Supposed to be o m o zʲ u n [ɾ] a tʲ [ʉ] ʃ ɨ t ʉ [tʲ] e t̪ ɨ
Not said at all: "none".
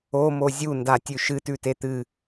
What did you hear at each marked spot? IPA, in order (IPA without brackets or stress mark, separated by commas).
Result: d, ʉ, t